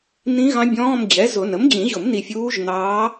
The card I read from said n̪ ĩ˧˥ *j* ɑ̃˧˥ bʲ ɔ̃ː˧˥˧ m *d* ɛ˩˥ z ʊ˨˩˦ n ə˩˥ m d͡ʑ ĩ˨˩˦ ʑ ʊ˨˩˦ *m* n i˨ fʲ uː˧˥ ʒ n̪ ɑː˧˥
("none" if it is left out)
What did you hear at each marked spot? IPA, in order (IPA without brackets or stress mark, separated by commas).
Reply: ɣ, d͡ʑ, m